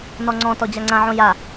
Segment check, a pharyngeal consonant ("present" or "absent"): present